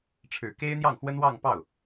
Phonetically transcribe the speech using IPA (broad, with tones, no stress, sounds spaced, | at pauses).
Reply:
ʈ͡ʂʰ ɻ̩˨˩ k e˥ ɪ̯ n̪ j ɑ˥˩ ŋ x w ə˥ n w ɑ˥˧ ŋ p ɑ˥˩ ʊ̯